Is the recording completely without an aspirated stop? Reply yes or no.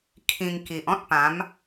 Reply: no